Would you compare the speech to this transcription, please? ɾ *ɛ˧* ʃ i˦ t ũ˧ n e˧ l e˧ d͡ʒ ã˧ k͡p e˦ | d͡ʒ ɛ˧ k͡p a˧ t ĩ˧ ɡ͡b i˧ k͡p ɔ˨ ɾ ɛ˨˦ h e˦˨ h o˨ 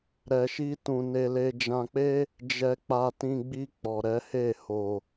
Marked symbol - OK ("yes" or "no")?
yes